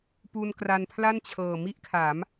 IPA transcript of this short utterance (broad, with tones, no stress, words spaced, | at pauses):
pu˧nkra˧npʰla˥˩nt͡ɕʰɤː˨˩ mi˥˩ʔkʰaː˩˦m